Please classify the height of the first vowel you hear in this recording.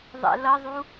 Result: mid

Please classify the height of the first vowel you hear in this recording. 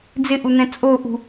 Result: high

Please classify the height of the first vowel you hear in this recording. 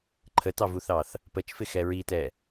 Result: mid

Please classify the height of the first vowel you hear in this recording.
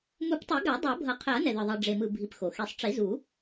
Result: high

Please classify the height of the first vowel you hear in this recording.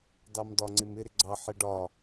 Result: low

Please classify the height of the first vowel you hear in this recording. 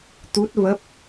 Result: high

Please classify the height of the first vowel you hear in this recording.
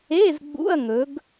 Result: mid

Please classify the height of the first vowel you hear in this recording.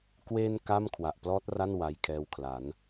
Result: mid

